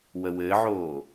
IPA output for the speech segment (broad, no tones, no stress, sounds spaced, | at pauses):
w ə w ɘː ʕ oː